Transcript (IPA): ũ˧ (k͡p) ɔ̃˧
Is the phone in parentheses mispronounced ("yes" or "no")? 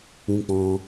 no